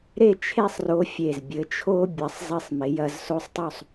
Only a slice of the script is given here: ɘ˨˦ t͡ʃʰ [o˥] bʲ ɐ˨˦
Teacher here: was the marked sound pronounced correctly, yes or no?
yes